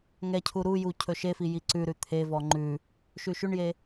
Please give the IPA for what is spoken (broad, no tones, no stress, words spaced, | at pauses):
ŋɛcʰu ɾuju cʰɵʃefi jiǀʉɾʉ t̪ʰevɔ ŋ͡ǃʉ | ʃʉʃʉɳje